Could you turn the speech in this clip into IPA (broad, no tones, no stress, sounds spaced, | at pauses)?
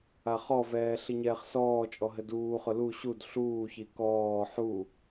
a χ ɔ v ɛː ɬ i ɲ ɛː χ s ɔː t͡ʃʼ ɔ ɦ ɘ d uː χ ʊ l u ɕ u d ɬ uː ç i k ɔː ħ u